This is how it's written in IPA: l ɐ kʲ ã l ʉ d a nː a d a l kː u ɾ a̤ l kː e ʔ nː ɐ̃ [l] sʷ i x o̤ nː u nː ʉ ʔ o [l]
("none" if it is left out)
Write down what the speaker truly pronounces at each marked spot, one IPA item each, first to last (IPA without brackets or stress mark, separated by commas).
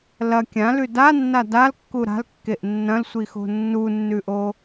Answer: l, none